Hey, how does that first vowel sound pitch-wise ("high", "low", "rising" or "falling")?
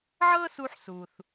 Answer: high